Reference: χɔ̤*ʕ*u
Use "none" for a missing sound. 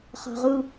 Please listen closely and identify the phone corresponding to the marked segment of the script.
ʁ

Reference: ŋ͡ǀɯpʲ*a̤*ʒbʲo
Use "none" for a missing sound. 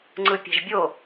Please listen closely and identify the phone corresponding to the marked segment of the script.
a̤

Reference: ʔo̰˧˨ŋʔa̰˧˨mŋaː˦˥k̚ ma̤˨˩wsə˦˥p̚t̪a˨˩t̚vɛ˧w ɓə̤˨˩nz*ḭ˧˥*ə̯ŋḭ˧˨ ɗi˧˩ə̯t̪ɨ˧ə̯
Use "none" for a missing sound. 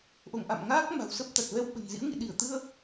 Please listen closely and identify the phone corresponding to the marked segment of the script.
ḭ˧˥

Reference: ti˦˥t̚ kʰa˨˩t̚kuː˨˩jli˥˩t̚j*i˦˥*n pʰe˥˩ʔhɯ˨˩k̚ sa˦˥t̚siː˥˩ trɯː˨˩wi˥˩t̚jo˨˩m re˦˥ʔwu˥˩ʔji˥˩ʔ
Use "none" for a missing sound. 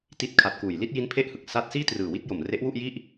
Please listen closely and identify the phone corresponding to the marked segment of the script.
i˦˥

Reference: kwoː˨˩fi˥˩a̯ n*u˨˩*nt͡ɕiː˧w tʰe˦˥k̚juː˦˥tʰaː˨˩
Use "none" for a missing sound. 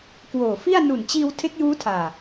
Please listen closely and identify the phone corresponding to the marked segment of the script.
u˨˩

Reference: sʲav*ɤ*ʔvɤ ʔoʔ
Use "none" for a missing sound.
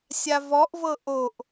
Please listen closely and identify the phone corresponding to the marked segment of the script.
ɔ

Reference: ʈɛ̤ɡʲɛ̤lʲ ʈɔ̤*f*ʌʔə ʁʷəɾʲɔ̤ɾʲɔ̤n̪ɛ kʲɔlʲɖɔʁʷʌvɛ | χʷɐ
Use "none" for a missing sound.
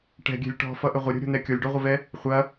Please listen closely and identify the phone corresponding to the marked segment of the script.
f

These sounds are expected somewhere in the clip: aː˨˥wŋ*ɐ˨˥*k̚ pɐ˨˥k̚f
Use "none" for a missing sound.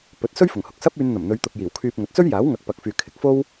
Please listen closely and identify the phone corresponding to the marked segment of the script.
ɐ˨˥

